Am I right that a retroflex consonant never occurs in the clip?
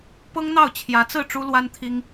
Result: no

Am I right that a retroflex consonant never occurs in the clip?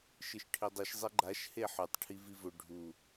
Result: no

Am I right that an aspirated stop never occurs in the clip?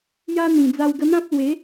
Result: yes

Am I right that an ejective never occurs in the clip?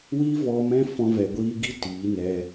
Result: yes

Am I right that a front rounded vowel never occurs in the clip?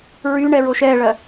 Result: no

